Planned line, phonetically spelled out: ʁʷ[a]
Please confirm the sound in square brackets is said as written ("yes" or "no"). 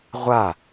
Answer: yes